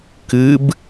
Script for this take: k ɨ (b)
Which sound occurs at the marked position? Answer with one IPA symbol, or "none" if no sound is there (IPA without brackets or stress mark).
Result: b